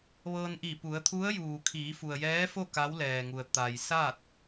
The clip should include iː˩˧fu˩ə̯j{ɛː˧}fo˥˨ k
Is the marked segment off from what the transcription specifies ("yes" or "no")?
yes